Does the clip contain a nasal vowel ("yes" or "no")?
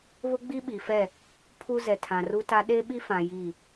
yes